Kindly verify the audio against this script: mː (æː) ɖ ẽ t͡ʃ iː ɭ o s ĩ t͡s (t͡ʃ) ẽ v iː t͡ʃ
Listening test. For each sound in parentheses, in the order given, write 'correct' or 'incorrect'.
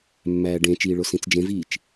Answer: correct, incorrect

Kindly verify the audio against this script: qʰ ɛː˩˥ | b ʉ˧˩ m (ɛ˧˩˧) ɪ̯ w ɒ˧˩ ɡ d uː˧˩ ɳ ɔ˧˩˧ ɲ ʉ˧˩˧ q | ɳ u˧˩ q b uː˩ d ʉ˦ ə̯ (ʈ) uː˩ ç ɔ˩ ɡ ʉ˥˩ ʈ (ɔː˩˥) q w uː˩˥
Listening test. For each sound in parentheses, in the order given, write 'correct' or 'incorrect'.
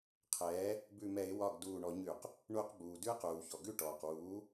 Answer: correct, incorrect, incorrect

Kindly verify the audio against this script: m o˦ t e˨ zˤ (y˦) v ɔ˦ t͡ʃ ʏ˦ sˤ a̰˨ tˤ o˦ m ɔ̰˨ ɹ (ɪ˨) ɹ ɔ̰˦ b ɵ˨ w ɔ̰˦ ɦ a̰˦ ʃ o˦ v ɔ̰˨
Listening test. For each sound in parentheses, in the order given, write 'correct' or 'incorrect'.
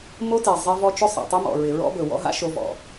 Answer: incorrect, correct

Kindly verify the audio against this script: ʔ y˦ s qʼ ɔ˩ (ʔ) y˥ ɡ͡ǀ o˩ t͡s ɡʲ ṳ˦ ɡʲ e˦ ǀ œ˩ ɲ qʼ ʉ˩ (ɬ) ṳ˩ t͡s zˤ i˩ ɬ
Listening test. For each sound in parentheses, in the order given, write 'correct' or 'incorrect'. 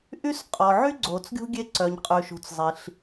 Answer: incorrect, incorrect

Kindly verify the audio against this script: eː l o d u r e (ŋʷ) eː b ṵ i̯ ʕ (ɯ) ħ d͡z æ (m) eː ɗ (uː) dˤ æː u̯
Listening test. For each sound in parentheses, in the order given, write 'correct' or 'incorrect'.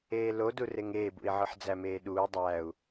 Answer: incorrect, correct, correct, correct

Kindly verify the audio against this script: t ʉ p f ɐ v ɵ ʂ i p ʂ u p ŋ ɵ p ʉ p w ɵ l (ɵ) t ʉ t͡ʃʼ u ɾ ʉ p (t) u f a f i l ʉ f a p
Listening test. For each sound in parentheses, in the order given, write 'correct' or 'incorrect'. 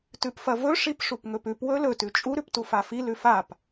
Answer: correct, correct

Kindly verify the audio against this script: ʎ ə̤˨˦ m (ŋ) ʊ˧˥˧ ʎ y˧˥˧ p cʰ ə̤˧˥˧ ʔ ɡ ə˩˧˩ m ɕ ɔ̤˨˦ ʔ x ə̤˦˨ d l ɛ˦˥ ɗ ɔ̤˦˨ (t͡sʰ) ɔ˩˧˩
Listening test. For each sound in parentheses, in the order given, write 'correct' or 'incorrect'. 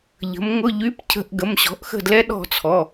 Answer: correct, correct

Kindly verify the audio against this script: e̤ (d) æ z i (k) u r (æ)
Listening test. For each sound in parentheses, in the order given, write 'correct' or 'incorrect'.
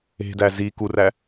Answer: correct, correct, correct

